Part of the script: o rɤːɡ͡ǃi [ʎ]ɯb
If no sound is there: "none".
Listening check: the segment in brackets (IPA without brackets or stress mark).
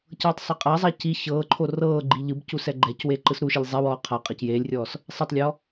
ʎ